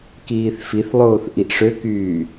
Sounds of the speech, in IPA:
k iː θ f i θ lˠ oː θ ʔ i ʔ ʂ ø k yː

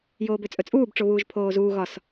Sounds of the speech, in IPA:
j oː b ø t͡sʼ ɵ t͡sʼ uː b ʈ͡ʂ o β uː ʒ pʰ oː z uː ɣ ɒ s

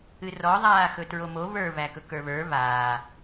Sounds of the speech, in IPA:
ɨ r ɔ ðˤ aː x ɵ t ɹ o m o β ə˞ β æ k ɵ k ə˞ β ə˞ β aː

